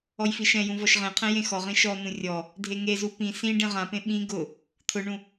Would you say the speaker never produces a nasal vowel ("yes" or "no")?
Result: no